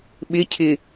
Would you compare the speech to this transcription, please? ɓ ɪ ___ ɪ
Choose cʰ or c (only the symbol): cʰ